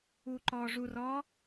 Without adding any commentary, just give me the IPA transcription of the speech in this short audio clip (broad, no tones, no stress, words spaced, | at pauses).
uːǃɔːʐurɔː